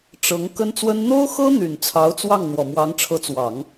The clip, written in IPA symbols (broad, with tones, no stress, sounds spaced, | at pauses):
ʈ͡ʂ ɤ˧˥ ŋ k ə˥ n t͡s w ə˥ n n̪ o˥ ʊ̯ x ɤ˥ n̪ y˨˩ n t͡sʰ ɑ˧˥ ʊ̯ t͡s w ɑ˥˩ ŋ n̪ w ɔ˨˩ m w ɑ˧˥ ŋ ʈ͡ʂʰ ɤ˧˥ t͡s w ɑ˨˩˦ ŋ